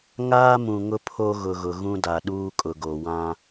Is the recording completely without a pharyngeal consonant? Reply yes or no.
yes